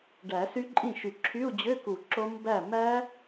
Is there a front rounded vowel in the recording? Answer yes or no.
yes